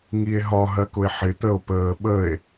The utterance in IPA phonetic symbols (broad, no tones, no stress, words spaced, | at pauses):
ŋie̯ɦɒ ɦɜkʊe̯ħɪ t̪əo̯ pəːɓəe̯